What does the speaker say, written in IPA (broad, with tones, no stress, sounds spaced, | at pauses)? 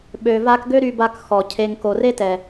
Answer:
ɓ ø˨ v a˧ k ɡ ø˦ ɾ y˧ b a˧ k x ɔ˨ cʰ e˨ ŋ k o˨ r e˦ t ɛ˨